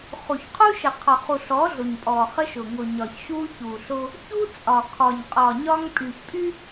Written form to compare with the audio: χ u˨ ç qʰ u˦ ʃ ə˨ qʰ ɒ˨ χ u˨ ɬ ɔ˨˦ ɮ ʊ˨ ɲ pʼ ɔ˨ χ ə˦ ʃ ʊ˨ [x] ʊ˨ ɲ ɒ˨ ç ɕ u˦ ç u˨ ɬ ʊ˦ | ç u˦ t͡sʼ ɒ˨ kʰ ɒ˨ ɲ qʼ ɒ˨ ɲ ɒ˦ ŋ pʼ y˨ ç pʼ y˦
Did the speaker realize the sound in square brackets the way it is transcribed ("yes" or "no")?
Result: no